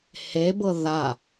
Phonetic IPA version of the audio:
h e b ɤ ð a

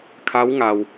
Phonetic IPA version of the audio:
kʰ a˧˥ w ŋ a˩ w

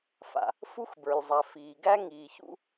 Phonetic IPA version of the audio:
f a̰˩ | f u˥ x b ə˞˩ lʲ zˤ a˩ f iː˩ ɡ æ˥ ŋ iː˩ ç ṵ˥

